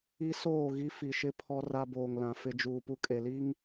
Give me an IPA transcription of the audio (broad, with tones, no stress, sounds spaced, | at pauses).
i˦ s oː˦˨ ɣ i˦ f i˨ ʃ ɪ˦ pʰ ɔ˦ r a˦ b oː˨ ŋ l ã˨ f ɪ˦ d͡ʒ uː˨ p u˦ kʼ e˨ l i˦ ŋ